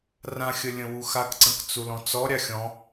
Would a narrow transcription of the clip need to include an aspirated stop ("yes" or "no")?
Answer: no